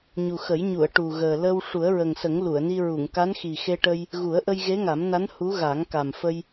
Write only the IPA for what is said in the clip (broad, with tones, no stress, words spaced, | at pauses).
ɲu˨˩xə˨˩˦jɲu˨˩˨ə̯ ʈu˨˩ɣəː˨˩ lə˧w ʂu˨˩˦ə̯ɹə˨˩ŋsə˨˩˦ŋ lu˨˩˨ə̯ni˧ɹu˨˩˨ŋ ka˧˥nxi˨˩xe˧ʈə˧j | ɣu˨˩˦ə̯ʔə˧j ɣe˧˥ŋa˨˩˦mna˧˥n hu˧˥ ɣa˨˩˦ŋka˨˩mfə˧j